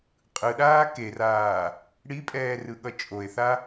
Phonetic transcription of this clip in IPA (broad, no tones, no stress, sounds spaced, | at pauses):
qʼ ɯ ɗ aː k e r aː | ɽ i pʼ ɛː r ɯ ɠ ʌ t͡ʃʼ o e̯ θ a